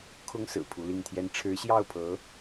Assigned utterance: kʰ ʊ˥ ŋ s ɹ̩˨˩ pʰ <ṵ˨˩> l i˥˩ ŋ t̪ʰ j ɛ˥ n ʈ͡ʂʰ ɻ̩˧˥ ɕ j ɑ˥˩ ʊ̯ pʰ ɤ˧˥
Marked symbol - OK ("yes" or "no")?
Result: no